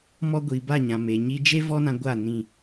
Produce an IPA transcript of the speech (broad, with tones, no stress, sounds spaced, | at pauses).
m ɔ˦ ɡʷ iː˨ b a˦˨ ɲ ã˨ m e˨ ɲ i˧ d͡ʒ e˦ v ɔ˦ n ã˧ ɡʷ a˦˨ n ĩ˦˨